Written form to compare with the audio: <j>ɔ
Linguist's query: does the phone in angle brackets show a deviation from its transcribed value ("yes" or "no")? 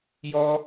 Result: no